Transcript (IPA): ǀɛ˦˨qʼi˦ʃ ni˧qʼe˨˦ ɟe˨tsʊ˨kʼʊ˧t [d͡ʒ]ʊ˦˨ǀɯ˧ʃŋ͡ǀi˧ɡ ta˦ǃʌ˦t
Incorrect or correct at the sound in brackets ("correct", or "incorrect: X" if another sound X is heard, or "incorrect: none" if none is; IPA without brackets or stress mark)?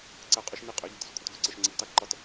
incorrect: ɡ